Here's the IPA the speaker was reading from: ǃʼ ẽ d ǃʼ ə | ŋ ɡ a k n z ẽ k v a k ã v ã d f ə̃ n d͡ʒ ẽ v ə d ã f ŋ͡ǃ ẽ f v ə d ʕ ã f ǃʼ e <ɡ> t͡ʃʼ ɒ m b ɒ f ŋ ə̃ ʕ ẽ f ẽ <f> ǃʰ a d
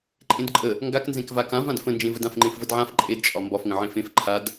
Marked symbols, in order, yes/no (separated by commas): no, yes